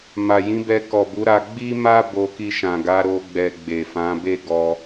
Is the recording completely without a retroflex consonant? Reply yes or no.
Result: yes